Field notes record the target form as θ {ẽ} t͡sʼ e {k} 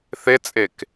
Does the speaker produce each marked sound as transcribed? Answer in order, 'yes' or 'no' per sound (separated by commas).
no, yes